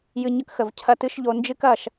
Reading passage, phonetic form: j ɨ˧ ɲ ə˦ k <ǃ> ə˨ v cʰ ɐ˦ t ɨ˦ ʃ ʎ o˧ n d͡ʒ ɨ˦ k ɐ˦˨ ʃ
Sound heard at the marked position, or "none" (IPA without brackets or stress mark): x